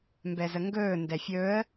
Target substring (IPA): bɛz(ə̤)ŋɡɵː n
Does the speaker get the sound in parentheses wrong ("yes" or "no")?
yes